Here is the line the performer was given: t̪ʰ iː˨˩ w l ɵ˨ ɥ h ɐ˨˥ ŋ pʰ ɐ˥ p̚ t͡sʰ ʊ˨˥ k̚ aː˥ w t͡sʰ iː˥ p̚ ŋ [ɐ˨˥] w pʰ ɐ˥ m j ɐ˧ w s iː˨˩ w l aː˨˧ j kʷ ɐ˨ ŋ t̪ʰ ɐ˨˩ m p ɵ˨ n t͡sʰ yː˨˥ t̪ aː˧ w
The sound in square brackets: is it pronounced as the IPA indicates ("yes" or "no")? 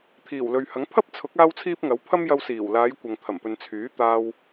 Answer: yes